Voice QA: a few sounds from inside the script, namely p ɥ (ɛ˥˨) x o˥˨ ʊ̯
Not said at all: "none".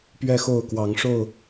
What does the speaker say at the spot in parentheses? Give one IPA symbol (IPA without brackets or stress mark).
ɛ˥˨